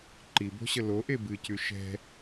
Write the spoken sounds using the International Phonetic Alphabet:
ǃibo̤ɕə loʔe bɨcʉ ʃɛ̤

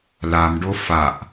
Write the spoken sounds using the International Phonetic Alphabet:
lamɖo faʔ

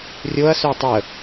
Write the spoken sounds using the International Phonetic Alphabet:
rʲoɐ̯ sʏɐ̯tˤə

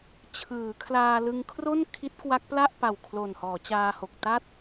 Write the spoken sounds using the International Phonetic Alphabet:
t͡ɕʰɯː˩˦kʰlaː˧lɯ˧ŋ kʰro˥˩n kʰi˦˥t̚kwa˦˥k̚pla˥˩ʔpa˨˩w kʰlo˨˩nhɔː˩˦t͡ɕaː˧ho˨˩k̚ ta˦˥t̚

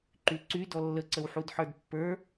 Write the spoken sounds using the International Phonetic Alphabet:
ǃyǀy dɔlːəǀəwħud ħə˞dpːə˞

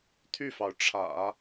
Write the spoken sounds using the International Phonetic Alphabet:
t̪ʰy˥˩fɑ˩ʊ̯ʈ͡ʂʰä̰˨˩˦

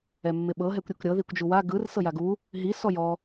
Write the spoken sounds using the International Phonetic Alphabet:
ɛmːɪɓɤ ɦɛkʷɾʲukɾʲɤ ðikʷd͡ʒuwa ɡɯr sɤjaɡu | ɦi sɔjɔ

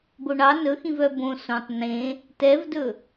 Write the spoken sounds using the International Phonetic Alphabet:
boɳɑ nɵxĩv œbõ sõtˤ nẽ | tɛvdɵ

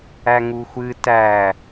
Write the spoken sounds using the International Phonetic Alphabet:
æŋuxʷɨ tæ

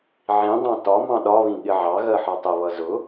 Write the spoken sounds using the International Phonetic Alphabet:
ʕĩdˤɑ̃ tɒ mɑ̃ɗɒβĩ ɠɪʕɑ ɣɜħɒtˤəβʌ zʊ

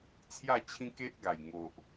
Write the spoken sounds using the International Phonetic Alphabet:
t͡sʰja˥˧t͡ɕʰĩ˦ke˦ʔ ɡa˨˩jŋo˨ʔ

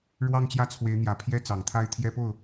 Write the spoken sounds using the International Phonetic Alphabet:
ɻwɑ˥˧ŋt͡ɕjä˥˩t͡sʰwe˧˥ɪ̯n̪jä˨˩ pʰjɛ˥t͡sɑ˨˩ŋt̪ʰa˥˩ɪ̯ t̪ʰjɛ˥po˥˩ʊ̯

